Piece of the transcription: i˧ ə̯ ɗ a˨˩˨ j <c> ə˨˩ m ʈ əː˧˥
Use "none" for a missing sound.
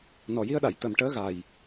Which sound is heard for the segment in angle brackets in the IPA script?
t̪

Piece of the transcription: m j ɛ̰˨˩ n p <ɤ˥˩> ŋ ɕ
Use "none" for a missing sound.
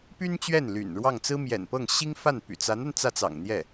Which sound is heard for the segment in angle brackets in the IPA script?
ɤ˥˩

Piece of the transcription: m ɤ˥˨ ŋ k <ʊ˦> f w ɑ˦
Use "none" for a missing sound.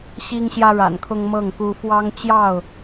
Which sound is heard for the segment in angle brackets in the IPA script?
u˦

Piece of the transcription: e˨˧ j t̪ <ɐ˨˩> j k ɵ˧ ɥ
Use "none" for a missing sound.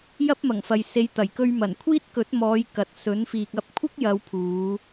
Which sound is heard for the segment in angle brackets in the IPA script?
ɐ˨˩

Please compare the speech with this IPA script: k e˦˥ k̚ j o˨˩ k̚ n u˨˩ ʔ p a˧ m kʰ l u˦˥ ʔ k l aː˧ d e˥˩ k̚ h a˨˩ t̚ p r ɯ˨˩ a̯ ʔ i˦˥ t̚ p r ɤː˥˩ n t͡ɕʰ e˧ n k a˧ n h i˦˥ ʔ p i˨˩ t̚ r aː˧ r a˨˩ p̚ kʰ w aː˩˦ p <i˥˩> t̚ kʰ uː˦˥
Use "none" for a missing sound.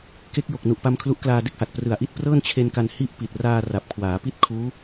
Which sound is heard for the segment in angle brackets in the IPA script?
i˥˩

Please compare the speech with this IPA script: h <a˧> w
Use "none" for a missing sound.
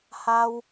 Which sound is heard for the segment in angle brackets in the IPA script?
a˧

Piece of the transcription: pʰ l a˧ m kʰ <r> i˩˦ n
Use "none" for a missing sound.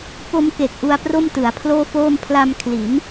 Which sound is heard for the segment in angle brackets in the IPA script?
l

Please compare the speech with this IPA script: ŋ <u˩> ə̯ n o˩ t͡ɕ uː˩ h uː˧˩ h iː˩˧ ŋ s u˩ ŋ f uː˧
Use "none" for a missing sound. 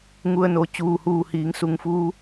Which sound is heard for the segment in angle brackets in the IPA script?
u˩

